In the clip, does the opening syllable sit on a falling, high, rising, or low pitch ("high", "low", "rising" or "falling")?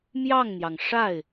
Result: falling